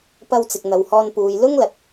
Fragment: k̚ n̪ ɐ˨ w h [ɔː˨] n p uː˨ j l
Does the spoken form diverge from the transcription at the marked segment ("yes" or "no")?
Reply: yes